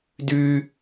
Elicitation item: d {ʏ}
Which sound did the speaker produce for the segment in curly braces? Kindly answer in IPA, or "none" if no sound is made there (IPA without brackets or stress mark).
y